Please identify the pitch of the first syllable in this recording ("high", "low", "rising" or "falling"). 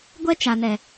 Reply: high